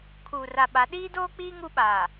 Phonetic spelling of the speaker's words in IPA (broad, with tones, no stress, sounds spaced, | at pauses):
kʰ uː˨ r a˨ ɓ a˨˦ ɗ iː˦ d oː˦ k͡p iː˦ ŋ u˦ ɓ aː˨